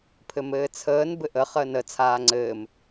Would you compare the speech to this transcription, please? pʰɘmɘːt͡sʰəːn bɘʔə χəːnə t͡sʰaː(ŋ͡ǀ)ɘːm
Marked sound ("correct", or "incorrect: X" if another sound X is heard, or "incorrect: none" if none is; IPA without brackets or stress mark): correct